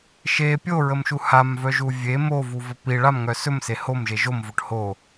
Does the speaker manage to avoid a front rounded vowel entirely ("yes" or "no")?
no